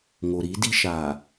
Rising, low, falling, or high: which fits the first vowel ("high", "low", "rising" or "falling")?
low